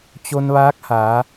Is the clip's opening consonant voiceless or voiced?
voiceless